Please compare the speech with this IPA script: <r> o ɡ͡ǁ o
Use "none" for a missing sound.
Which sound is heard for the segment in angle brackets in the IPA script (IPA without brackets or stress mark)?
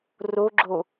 r